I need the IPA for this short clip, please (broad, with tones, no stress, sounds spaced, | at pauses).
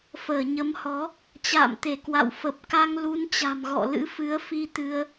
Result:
f əː˧˩ ɲ ə˨˦ m h ɔ˨˦ | t͡ɕ a̰ː˧˨ m t̪ e˧˩ k w a̰˧˨ w f ə˨˩ p̚ k a˧ ŋ l u˨˦ n t͡ɕ a̤˨˩ m ɣ ɔ̰˧˨ l ɨ̰˧˥ f ɨ˨˦ ə̯ f i˧ t̪ ɨ˧ ə̯